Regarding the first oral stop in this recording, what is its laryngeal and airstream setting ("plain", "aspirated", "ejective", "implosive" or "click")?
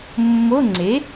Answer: click